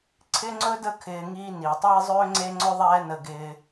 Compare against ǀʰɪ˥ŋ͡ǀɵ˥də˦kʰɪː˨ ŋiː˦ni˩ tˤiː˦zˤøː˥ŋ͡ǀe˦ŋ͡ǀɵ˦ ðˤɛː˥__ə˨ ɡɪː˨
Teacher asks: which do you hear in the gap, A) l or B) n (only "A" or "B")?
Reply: B